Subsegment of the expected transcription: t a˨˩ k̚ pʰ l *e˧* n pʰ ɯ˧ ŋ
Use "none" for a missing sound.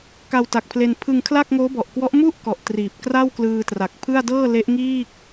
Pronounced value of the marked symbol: e˧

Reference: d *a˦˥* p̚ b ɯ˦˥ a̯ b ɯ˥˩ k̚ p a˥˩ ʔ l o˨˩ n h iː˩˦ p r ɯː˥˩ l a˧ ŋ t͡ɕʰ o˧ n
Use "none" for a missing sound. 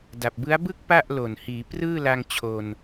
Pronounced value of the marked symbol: a˨˩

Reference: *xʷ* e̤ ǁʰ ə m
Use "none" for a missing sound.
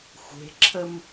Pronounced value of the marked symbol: xʷ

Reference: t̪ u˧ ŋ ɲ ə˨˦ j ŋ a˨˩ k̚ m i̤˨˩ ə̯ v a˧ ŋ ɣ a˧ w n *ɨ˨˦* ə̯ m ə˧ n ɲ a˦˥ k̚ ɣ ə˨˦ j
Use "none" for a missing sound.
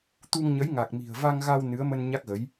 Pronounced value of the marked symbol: ɨ˨˦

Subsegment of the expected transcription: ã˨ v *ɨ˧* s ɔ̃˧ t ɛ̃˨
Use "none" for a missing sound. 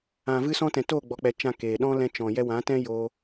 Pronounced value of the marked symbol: ɨ˧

